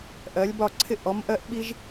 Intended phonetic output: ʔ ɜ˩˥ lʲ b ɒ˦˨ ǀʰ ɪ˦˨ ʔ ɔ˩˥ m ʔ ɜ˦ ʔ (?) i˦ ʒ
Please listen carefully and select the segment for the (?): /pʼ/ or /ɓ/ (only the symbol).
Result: ɓ